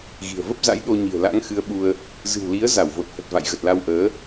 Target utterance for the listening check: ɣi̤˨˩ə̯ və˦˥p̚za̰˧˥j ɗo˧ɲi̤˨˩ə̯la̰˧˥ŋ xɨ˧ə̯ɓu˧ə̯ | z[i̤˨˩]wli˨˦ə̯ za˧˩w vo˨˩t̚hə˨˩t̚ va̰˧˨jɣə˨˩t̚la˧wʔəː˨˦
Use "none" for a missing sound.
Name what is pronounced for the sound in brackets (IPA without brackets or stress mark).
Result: ɨ̤˨˩